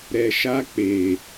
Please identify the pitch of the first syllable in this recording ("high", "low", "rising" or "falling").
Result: low